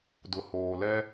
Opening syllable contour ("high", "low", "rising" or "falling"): low